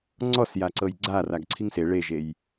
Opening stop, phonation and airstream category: click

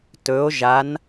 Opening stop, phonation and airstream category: plain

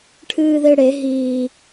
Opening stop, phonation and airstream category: aspirated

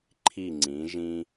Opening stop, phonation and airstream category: click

